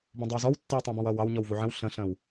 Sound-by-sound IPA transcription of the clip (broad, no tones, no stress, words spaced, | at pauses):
bũdˤəwzɔw tːəwtˤæ̃bɔ̃wʌːw ɑwɲɔw vuʕə̃w ɬə̃ɬə̃ːw